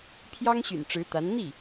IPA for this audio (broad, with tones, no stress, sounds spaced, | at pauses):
pʰ j ɑ˥ ŋ ɕ y̰˨˩ n ʈ͡ʂ ɻ̩˧˥ t̪ a˧˥ n n̪ i˥˩